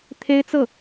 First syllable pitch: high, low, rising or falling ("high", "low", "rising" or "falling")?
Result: high